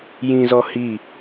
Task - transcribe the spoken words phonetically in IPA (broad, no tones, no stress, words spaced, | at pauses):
jĩzɔ hi